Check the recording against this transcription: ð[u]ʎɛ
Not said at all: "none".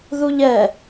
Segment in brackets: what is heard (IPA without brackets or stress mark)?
u